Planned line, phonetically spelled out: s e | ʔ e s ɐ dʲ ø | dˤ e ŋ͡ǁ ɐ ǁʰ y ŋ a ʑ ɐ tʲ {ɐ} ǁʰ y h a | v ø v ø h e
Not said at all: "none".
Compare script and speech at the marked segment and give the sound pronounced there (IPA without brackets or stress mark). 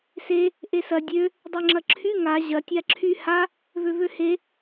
a